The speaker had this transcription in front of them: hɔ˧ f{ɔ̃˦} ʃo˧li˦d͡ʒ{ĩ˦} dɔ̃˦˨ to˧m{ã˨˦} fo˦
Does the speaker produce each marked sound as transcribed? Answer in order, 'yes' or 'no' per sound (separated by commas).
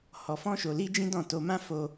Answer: yes, yes, no